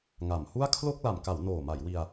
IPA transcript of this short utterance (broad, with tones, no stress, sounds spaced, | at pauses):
ŋ a˨˩ m h u˥˩ a̯ kʰ l o˥˩ k̚ l a˨˩ m k a˩˦ w n oː˨˩ m a˩˦ j w i˧ a̯